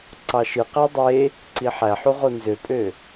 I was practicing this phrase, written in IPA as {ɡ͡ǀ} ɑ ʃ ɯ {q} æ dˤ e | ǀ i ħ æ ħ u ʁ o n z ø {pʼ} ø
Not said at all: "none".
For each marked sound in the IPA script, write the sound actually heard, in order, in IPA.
ǀ, q, pʼ

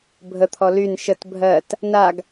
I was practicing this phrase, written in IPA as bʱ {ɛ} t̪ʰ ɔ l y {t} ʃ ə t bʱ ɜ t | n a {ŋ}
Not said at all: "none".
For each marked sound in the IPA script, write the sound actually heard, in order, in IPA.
ə, n, ɡ

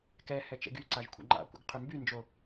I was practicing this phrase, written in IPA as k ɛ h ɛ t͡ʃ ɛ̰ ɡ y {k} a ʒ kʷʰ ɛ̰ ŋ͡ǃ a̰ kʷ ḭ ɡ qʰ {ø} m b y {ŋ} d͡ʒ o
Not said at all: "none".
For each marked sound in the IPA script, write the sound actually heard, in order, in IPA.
ǀ, ø, n

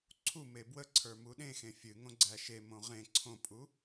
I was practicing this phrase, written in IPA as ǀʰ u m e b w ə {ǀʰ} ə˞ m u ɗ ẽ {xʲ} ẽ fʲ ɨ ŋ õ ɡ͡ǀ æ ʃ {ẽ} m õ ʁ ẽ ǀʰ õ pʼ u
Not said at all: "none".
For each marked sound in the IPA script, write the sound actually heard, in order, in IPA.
ǀʰ, x, e

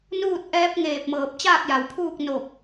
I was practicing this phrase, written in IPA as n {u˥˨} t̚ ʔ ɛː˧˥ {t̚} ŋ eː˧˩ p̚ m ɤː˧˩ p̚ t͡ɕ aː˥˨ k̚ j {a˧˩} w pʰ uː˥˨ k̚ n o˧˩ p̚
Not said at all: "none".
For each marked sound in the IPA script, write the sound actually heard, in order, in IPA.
uː˥˨, p̚, a˩

